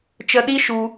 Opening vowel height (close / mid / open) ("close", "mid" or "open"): mid